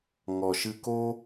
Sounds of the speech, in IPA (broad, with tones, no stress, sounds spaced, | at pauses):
ŋ ɔ˨ ʃ ɨ˧ k o˦